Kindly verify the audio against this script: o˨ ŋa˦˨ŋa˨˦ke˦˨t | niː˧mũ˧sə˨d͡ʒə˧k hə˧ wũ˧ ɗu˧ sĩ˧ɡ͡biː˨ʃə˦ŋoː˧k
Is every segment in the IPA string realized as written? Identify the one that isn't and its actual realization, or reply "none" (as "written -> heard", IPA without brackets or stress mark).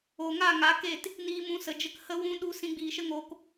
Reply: none